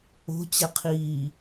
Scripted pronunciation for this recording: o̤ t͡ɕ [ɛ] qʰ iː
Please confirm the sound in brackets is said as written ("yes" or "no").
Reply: yes